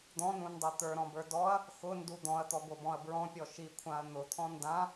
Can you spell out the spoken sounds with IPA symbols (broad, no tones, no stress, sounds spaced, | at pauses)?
d̪ ɔ̃ n ũ n dˤ ɛ t̪ ə˞ ɾ ɔ̃ b ə˞ d ɔ ɐ̯ | x ʊ n d u d̪ ɔ̃ ɐ̯ t̪ ɔ ɡʷ ɤ b ɔ̃ ɐ̯ b ɹ ɔ̃ pʲ ɔ ʃ i kʷʰ ã ɐ̯ n̪ ʊ t̪ʰ ɔ̃ n d ã